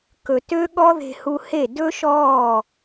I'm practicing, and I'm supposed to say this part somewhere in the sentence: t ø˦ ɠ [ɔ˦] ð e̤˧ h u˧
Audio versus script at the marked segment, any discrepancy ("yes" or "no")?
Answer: no